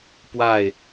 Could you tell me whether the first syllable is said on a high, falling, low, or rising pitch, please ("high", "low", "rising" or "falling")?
falling